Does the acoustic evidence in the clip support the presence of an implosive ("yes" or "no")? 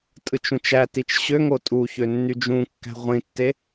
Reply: no